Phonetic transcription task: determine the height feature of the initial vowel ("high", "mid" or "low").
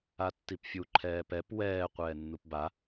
low